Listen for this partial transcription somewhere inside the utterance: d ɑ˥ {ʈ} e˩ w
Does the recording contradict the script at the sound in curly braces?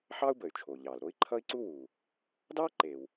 yes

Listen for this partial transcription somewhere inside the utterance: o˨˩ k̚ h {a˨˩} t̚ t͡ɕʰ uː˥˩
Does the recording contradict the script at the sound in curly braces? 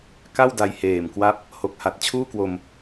no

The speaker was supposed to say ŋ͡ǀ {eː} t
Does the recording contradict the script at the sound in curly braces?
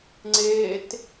no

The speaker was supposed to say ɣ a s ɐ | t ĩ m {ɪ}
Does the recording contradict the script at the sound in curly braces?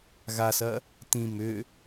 yes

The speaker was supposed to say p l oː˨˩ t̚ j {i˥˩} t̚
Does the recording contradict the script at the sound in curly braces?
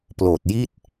no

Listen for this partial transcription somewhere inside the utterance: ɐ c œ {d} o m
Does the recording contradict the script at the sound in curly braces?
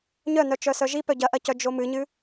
yes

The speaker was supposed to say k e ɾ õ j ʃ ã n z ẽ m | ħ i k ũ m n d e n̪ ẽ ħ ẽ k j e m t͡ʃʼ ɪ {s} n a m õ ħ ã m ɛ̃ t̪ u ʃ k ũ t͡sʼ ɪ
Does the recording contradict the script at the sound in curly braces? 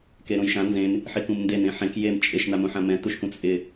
yes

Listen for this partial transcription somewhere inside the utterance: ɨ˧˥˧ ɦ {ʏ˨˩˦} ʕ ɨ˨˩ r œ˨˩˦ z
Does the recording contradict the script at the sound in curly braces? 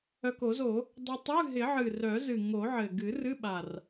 yes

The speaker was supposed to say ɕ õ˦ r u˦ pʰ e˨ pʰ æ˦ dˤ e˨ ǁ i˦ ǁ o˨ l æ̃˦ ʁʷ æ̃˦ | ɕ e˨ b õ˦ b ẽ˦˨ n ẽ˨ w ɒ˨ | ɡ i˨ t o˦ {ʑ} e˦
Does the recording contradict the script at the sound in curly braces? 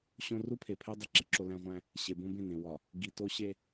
yes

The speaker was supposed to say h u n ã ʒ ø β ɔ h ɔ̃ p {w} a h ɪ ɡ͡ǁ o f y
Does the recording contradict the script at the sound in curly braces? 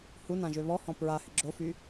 yes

